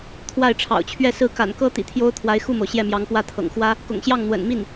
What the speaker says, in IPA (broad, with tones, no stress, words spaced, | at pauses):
t̪ʰwa˥˩ɪ̯ʈ͡ʂʰɑ̰˨˩ʊ̯t͡ɕʰɥɛ˥˧ sɹ̩˥˩ ka̰˨˩nkɤ˥ t̪ḭ˨˩t̪ʰjo˥ʊ̯t̪ʰwa˧˥ɪ̯ xu˥˩mo˩ʊ̯ ɕjɛ˥˩mjɑ˧˥ŋpwä˥˩t̪ʰɤ̰˨˩ŋ xwä˥ | kʊ̰˨˩ŋɕjɑ˥˩ŋ n̪wə̰˨˩n mi˥˩n